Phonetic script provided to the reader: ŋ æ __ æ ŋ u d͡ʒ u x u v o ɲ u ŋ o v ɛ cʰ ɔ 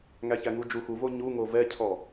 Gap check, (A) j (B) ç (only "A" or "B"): B